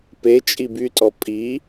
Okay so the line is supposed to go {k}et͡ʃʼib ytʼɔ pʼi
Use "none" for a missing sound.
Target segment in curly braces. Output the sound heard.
p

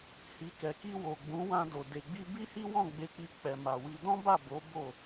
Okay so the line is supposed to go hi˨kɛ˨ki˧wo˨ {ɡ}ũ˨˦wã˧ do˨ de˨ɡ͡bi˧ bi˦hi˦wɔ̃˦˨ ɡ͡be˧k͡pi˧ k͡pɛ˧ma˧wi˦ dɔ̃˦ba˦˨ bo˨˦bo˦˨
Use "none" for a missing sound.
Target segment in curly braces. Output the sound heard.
ɡ͡b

